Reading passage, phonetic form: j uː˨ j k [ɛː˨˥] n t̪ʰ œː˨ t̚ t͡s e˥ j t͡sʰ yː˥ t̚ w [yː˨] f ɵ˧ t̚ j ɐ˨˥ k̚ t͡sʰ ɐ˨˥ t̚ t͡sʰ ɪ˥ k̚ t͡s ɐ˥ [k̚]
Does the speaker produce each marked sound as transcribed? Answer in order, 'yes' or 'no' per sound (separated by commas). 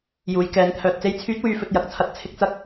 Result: yes, no, yes